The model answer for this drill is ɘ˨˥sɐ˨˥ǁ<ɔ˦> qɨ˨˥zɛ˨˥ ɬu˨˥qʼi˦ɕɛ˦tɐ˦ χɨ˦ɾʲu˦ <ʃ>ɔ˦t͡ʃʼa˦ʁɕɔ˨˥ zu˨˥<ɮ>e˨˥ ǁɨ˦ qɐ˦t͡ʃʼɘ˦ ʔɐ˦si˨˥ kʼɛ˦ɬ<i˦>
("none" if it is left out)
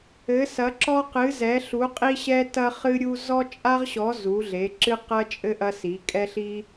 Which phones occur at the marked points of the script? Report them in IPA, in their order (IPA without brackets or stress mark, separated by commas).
ɔ˦, z, ɮ, i˦